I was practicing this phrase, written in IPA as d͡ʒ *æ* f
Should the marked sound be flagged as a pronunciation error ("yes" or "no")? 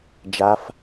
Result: yes